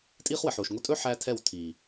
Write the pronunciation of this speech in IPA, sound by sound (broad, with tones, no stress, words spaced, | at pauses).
tʼiː˦χwə˨ħoː˨ʃ ŋo˧tʼɵ˦ ħæ˦tʰɛ˦˨w tʰiː˨